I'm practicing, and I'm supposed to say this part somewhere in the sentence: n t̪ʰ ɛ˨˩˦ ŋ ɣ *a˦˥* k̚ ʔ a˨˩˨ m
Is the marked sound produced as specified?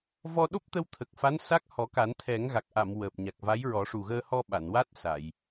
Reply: no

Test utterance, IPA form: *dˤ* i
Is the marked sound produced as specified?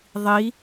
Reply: no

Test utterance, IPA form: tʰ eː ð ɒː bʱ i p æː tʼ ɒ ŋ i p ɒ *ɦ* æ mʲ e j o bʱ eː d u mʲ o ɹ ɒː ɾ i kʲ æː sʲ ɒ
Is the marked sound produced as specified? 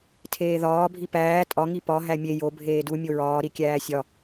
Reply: yes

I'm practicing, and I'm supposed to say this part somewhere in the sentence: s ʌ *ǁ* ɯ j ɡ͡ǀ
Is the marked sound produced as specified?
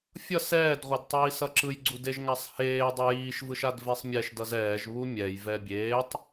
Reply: yes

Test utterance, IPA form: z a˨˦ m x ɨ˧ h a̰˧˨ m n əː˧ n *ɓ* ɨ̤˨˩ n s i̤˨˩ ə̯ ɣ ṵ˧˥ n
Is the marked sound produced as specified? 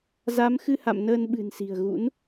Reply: yes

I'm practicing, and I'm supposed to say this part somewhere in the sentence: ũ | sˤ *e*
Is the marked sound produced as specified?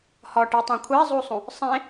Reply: no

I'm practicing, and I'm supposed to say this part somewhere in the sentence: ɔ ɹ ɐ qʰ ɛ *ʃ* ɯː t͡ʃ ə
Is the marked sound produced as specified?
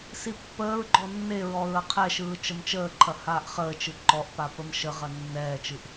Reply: yes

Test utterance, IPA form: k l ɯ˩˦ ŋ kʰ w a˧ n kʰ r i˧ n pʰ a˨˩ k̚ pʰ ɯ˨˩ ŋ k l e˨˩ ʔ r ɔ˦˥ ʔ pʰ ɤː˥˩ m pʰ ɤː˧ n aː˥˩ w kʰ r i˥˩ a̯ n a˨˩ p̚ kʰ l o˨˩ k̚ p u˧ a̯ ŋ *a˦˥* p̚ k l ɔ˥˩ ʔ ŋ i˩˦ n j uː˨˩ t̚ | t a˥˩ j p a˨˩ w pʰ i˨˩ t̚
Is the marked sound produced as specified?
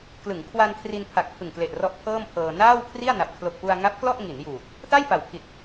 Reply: yes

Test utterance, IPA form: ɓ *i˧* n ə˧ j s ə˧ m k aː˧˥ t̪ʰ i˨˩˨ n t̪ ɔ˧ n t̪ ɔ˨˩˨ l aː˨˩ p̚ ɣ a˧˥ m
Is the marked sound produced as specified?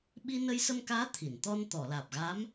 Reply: yes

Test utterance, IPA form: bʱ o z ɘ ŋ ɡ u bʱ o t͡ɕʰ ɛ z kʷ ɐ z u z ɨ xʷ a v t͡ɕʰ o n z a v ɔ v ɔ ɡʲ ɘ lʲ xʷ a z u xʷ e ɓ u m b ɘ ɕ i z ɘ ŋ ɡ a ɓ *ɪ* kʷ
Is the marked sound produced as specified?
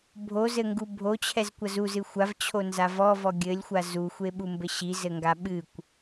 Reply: no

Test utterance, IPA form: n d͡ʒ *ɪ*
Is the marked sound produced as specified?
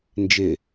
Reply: yes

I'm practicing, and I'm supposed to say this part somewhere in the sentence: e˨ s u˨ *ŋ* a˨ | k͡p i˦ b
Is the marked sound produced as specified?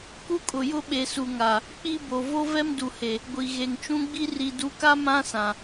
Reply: yes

